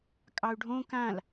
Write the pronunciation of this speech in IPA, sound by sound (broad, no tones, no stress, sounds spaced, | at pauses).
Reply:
kʼ ɑ u̯ ɖʱ õ k ã l